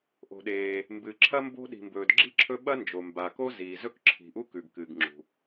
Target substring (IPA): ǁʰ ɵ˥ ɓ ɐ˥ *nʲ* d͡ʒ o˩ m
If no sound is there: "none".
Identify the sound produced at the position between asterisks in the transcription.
n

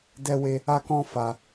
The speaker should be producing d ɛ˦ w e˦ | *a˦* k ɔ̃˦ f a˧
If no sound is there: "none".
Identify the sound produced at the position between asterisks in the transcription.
a˦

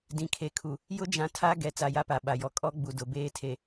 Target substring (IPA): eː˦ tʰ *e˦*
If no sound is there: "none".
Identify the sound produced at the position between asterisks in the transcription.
e˨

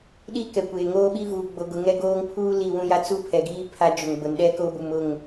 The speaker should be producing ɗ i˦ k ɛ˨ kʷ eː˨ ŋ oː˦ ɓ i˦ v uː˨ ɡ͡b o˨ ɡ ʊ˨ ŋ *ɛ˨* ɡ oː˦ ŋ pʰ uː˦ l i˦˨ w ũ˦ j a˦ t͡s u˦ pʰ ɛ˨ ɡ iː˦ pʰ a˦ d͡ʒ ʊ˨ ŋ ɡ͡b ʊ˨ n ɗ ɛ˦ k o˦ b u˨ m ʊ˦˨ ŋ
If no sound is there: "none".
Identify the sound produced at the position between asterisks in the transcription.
ɛ˦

